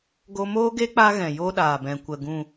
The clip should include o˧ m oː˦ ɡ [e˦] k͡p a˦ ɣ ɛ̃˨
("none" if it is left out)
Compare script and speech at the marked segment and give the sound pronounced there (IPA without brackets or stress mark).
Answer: e˦